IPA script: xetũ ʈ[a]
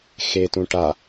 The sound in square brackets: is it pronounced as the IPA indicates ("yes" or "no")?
yes